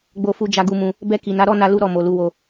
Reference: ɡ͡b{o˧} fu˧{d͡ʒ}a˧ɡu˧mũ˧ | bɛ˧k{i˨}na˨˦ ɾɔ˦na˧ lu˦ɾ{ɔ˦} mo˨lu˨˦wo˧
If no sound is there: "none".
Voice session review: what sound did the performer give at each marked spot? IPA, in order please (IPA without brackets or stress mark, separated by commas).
o˧, d͡ʒ, i˨, ɔ˦˨